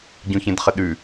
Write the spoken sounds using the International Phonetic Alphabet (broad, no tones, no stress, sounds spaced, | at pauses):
ɟ ũ ç ẽ d χ ə ɗ ʉ